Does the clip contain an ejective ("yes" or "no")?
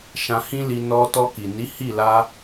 no